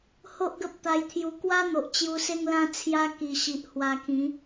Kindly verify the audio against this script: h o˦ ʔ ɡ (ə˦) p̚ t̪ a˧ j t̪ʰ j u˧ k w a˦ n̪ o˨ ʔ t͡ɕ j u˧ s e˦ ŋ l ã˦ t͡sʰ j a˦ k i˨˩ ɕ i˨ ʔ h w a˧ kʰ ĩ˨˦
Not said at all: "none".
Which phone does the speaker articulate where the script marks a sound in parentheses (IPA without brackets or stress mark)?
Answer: ə˦